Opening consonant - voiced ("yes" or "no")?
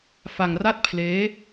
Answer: no